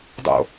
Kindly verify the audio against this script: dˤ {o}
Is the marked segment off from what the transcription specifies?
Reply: yes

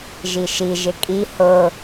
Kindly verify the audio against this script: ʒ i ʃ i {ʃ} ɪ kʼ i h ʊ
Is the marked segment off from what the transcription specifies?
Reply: yes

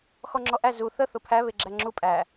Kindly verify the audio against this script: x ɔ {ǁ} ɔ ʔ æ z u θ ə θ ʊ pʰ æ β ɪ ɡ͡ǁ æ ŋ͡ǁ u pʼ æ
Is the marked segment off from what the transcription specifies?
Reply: yes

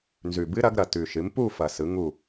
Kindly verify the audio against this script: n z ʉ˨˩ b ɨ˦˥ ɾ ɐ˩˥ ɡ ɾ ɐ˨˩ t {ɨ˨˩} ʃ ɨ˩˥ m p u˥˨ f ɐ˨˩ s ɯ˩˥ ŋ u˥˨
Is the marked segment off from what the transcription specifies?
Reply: yes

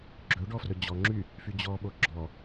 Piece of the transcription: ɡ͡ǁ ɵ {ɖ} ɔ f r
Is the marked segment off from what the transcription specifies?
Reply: no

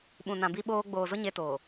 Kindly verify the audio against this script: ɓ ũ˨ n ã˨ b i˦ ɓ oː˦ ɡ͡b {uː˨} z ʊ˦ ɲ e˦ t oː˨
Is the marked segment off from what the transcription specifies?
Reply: yes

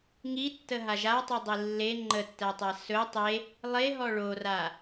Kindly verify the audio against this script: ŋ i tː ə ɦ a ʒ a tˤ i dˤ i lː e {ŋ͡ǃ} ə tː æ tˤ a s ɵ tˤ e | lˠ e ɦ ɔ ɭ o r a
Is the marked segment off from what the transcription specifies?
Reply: no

